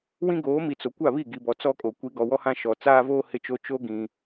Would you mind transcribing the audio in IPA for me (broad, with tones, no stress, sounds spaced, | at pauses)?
w ĩ˦ ɡ oː˨˦ m i˨ t͡s o˨ kʷ a˦˨ β i˦˨ ɡ i˨ b ɔ˨ t͡s ɔ˦ kʼ o˨ kʷ i˨˦ ɡ ɔ˨ w ɔ˦ h ã˦ ʃ ɔ˨ t͡s aː˦ v oː˦ h ɪ˦ t͡ʃ o˦ t͡ʃ o˦ ɡ ĩ˨